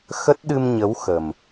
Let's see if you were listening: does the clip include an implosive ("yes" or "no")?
yes